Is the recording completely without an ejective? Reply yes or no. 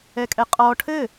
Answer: no